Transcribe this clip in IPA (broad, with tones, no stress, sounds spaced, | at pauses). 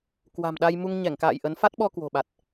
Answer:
k w a̤˨˩ m ɗ a˧ j m u˧ ŋ ɲ ɛ˧˩ ŋ k a̰ː˧˨ j ʔ ə˨˦ n f a˦˥ t̚ ɓ ɔ˧ k w o̤˨˩ ɓ a˨˩ t̚